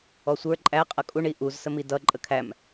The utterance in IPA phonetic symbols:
ɔsʷə˞ ǃʼæ qʼʌkʼuɳ iʔuz səmidʌ ǃʼəkʰæm

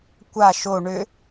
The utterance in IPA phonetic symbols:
kʷa ʃo ɳʏ

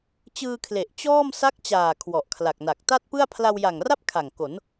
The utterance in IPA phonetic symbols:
t͡ɕɯː˧kʰle˨˩ʔ t͡ɕɔː˥˩m sa˦˥k̚t͡ɕaː˨˩ kʰwɔ˨˩ʔkʰla˨˩k̚na˨˩k̚ ta˥˩t̚pɯ˥˩a̯ pʰla˧wja˨˩ŋra˥˩p̚ kʰa˨˩ŋko˩˦n

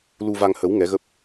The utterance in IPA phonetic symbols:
lu˧va˧ŋhə˨˦w ŋɛ˨˦ɣə˦˥p̚

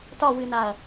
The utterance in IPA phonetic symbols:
tɒwɨnaɐ̯

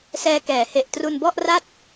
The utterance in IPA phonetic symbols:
sɛː˧kɛː˩˦he˨˩ʔ tru˧nbɔ˥˩ʔra˥˩t̚

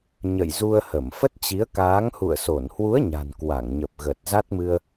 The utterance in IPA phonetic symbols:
ɲə̰˧˨jzu˧ə̯ hə˧˩mfə˦˥t̚t͡ɕi˨˦ə̯ kaː˨˦ŋhṵ˧˨ə̯so˧˩n hwu˨˦ə̯ ɲa̤˨˩n kwa˧˩ŋɲə˨˩p̚ɣə˨˩t̚ za˦˥t̚mɨ˧ə̯

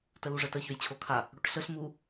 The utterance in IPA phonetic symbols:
təluʐətə çøjt͡ɕʰokʰa | ɽoʈɬəɬ mu

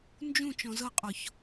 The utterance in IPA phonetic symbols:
nd͡ʒũ t͡ʃɔ̃zɤqʼɔç

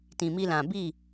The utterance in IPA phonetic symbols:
tĩ˨mi˧lã˨bi˦˨

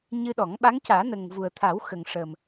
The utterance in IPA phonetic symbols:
ɲɨ˧ɗɔ˨˩˦ŋɓa˧˥ŋ caː˨˩˦nə˨˩ŋ vu˨˩ə̯t̪ʰa˨˩˦w xə˨˩ŋʂə˨˩m

